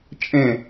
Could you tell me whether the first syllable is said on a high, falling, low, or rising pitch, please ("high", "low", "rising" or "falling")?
falling